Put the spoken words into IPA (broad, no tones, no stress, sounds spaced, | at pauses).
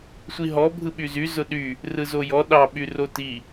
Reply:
sʷ i ɦ ɔ bʱ ɯ ɓ y z y z ʊ ɗ y | r ɯ z o j ɔ ɗ ɑ ɓ y r o t i